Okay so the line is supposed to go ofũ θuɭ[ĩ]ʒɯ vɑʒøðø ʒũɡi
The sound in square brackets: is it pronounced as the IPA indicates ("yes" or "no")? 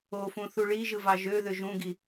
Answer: no